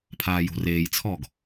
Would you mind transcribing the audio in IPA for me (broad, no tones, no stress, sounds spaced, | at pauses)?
pʰ aː j o̤ r eː j t͡sʰ ɔː ɡ